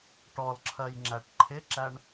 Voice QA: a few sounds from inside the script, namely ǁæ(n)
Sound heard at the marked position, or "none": ɳ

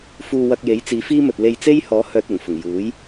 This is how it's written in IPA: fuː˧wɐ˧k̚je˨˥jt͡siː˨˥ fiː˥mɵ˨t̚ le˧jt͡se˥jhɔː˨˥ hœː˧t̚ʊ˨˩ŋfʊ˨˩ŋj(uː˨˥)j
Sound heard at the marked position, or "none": uː˨˥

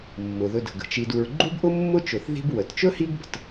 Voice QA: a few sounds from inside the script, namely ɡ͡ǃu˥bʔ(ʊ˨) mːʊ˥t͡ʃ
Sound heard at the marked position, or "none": ʊ˥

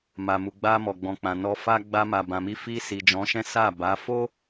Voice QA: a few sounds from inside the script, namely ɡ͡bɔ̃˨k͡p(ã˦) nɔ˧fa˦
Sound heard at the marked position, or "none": ã˨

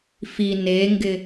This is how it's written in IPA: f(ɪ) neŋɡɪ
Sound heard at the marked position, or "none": i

